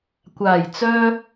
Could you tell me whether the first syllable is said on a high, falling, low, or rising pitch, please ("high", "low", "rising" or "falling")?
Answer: low